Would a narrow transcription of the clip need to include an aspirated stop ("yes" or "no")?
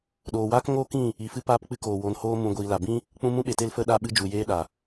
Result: no